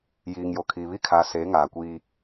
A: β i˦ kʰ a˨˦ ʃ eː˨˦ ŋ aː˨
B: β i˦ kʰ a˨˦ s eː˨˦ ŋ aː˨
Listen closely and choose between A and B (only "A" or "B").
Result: B